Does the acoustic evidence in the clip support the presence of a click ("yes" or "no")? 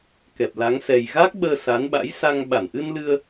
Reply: no